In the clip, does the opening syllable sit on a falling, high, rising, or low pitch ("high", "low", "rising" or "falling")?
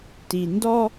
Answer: low